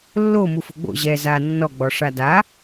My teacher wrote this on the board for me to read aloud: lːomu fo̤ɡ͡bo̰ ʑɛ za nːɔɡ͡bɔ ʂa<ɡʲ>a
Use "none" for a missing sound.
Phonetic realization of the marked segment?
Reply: d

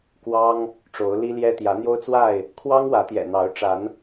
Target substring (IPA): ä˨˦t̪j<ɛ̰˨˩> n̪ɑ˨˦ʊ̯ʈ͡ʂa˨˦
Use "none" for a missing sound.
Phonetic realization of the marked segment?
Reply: ɛ̰˨˩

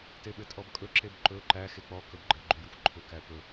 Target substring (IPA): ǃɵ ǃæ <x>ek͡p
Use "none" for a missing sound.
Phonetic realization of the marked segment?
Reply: x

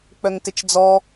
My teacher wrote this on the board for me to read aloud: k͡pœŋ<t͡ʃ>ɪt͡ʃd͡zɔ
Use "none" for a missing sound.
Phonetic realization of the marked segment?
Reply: t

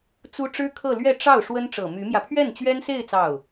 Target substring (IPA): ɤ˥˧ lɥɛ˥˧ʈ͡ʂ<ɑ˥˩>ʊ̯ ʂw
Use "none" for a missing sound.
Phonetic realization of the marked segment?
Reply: ɑ˥˩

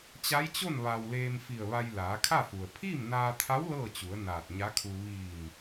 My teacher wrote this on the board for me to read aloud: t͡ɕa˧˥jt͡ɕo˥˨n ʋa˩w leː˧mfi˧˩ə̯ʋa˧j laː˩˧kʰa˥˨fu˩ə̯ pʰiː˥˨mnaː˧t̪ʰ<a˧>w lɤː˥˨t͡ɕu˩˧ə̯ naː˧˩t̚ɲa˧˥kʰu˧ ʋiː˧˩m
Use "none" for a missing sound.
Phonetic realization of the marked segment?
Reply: a˧˥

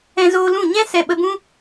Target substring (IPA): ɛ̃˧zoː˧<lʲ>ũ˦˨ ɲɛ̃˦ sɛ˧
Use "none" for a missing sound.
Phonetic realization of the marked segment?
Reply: l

